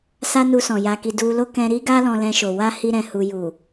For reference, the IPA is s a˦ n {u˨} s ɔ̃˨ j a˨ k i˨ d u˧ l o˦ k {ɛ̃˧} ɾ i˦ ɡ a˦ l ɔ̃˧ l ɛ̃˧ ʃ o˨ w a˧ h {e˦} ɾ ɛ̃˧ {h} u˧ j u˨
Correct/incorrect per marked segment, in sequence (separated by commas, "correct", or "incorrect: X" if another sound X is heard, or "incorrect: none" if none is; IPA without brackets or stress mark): incorrect: u˧, correct, incorrect: i˦, correct